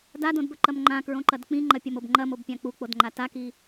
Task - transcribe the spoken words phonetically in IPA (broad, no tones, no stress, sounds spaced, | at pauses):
d a d õ d b ɵ ǃ ɐ m ŋ͡ǃ ã k ɹ õ ǃ ɐ d k͡p ĩ ŋ͡ǃ ɐ pʲ ɐ m o b ŋ͡ǃ ɐ m o b pʲ ã k͡p u k͡p o d ŋ͡ǃ a t a k i